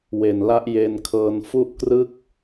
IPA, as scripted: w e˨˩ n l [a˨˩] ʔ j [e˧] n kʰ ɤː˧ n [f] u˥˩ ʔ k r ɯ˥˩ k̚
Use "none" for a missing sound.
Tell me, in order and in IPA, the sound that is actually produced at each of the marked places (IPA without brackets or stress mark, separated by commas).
a˦˥, e˧, f